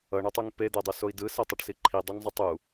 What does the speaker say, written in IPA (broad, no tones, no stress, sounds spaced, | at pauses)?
ʌ ɳ ʌ tˤ u ŋ p e d̪ ɛ dˤ o s o i̯ d ɯ s ɛ tˤ ʌ ʈ s i ǃʰ i dˤ u ŋ zˤ ɯ tˤ u